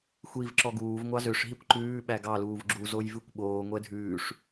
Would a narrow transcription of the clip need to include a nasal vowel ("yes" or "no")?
no